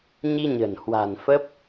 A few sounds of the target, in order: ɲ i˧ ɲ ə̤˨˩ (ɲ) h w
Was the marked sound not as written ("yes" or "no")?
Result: yes